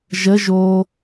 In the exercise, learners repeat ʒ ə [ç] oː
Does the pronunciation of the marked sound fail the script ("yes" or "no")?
yes